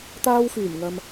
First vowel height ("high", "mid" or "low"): low